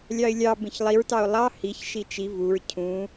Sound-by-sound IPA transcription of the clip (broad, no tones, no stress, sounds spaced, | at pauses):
lʲ ɑ ɪ̯ lʲ ɑ b ẽ ç lˠ i ɹ t ɑ ʊ̯ lˠ ɑ h i ç ʃ i t͡ʃ i v u ɹ cʰ ũ